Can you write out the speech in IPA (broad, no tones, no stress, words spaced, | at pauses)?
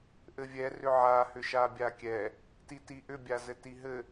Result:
ʔɘvʲɛ rʏʕa hʏʃabʲakʲɛ | titiʔʏ bʲazɘtiɦɘ